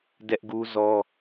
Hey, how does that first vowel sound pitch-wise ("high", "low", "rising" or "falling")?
high